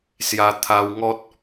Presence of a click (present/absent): absent